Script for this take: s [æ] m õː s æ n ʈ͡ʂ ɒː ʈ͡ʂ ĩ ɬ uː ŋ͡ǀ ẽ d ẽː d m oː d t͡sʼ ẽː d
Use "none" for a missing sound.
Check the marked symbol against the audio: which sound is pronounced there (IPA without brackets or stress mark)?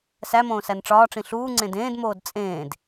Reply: æ